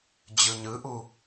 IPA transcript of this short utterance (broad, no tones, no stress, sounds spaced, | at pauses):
d͡ʑ ɯ ɲ ɯ ʔ u